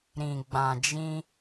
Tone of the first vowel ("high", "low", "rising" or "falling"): low